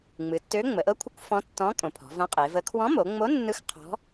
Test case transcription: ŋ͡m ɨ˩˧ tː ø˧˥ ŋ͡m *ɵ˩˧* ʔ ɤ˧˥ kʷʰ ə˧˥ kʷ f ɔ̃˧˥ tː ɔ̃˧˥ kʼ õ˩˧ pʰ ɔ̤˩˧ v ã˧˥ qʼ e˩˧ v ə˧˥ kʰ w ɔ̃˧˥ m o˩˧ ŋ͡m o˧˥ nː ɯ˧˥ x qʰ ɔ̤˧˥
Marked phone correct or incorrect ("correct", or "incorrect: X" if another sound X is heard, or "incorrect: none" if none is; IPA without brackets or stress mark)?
incorrect: ə˩˧